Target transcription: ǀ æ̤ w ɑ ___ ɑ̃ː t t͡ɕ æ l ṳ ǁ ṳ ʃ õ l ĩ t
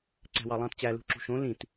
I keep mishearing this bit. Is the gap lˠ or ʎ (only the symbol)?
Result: lˠ